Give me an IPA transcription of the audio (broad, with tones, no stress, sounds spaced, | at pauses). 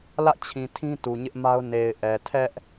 l ä̰˦˨ t͡ɕʰ ĩ˨ tʰ ĩ˦ t u˨ ɲ ɪ˦ ʔ m a˦ ʊ̯ n e˨ ɪ̯ ʔ ɛ˨ tʰ ɛ˦ ʔ